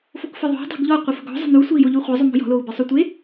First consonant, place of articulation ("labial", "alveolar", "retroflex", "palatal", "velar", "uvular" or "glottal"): labial